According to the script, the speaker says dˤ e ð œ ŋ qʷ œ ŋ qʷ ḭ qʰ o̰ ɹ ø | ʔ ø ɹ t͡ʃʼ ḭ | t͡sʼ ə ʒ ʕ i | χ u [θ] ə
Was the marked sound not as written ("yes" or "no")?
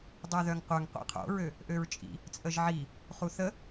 no